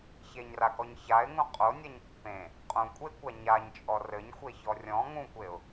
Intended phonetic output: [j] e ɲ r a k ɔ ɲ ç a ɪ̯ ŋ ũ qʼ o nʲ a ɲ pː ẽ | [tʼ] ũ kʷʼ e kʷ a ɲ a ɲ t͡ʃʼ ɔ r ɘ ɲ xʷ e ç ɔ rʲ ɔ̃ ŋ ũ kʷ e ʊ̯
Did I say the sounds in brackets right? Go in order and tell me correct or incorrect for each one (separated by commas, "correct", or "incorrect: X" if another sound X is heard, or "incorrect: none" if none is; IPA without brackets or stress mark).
incorrect: ç, incorrect: qʼ